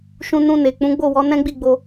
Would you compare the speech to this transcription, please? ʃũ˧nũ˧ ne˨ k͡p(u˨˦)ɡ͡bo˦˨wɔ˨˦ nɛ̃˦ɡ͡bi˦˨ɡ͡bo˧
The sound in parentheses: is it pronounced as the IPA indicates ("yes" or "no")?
no